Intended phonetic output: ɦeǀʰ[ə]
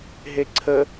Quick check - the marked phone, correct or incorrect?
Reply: correct